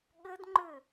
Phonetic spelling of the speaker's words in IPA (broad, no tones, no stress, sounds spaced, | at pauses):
ɠ ɘ d ŋ͡ǃ ʏ